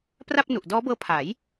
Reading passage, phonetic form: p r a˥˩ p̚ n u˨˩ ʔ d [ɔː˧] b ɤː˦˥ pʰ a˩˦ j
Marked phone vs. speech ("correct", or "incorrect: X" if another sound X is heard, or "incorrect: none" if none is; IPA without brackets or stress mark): incorrect: ɔː˦˥